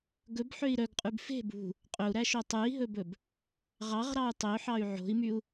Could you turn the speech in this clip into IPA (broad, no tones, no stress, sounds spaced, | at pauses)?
ɡ ɵ b ħ ø i̯ ɾ œ ɡ qʼ ʉ b f e̤ b ṳ | qʼ ɵ u̯ ɾ æ ʃ o tˤ ʉ i̯ ɦ ɵ b ɵ b | ʁ ɑ ʁ ɾ ɑ u̯ tˤ ø ħ ɑ y̯ ʕ o̤ i̯ m y u̯